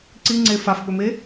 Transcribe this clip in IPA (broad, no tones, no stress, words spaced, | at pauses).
ǀiŋ͡ǀe fafɓɵme